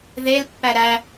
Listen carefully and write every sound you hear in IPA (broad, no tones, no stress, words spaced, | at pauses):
ðelpːæ ɾæ